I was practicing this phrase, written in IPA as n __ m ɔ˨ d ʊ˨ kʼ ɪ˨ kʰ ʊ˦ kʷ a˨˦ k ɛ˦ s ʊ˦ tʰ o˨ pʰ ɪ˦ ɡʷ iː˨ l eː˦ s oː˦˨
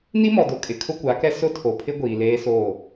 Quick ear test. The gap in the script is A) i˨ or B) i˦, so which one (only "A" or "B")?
B